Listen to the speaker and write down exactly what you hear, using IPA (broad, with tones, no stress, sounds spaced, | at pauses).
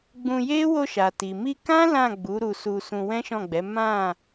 ɡ͡b ũ˧ j e˦ w o˧ ʃ a˨ t i˨ m i˧ k ã˦ l ã˦˨ ɡ͡b u˨˦ ɾ u˧ s u˧ s ũ˧ w ɛ̃˦ ʃ ɔ̃˦˨ ɡ͡b ɛ˨˦ m ã˦˨